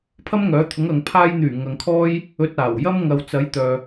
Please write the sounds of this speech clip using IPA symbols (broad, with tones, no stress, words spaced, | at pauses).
pʰɐ˥mŋœː˨˥t̪ʰʊ˨˥ŋɐ˨ŋ pʰaː˧jn̪yː˨˩ ŋɐ˨ŋkʰɔː˥j | ɵ˧t̚aː˨˩wjɐ˥m ŋɐ˨wt͡sɐ˨˥j t̪œː˨